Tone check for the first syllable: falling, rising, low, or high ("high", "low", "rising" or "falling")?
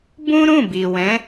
high